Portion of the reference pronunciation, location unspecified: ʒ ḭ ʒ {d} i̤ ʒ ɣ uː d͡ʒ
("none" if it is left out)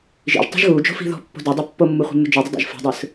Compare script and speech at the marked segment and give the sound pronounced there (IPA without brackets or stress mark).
tˤ